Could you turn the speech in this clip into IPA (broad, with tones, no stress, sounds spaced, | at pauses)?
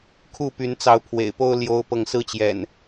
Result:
kʰ u˥˨ p y˨˦ n t͡s ɑ˨˦ ʊ̯ pʰ w ḛ˨˩ ɪ̯ p o˦ ʊ̯ l j o˦ ʊ̯ p ɤ˥˨ ŋ s ɹ̩˦ t͡ɕ j ɛ̰˨˩ n